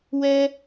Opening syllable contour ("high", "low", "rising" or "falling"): high